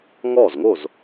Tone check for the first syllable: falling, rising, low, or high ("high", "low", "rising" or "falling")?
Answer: falling